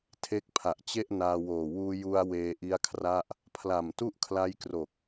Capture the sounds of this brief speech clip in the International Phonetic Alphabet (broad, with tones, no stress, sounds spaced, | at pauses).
tʰ e˦˥ k̚ pʰ a˨˩ ʔ t͡ɕ e˥˩ ʔ n aː˧ w oː˨˩ w uː˧ j u˧ a̯ w eː˧ ʔ i˦˥ a̯ kʰ r a˥˩ ʔ | pʰ l a˨˩ m t u˥˩ ʔ kʰ l a˦˥ j k r o˨˩ k̚